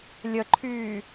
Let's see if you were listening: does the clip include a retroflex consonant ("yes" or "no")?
no